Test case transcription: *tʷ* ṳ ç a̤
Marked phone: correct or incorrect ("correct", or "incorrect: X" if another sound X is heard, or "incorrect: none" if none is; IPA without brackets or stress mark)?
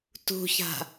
incorrect: t